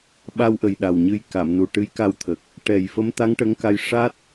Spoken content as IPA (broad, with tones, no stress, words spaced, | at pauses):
ɓa˧wʔə˨˩j ɗa˨˩wɲɨ˧j ka˨˩˨mnu˨˩ ʈɨ˧˥jka˧wt̪ʰə˨˩k̚ | ʈɛ˨˩j fə˧˥m t̪a˧˥ŋʈə˧˥ŋka˧j ʂa˦˥t̚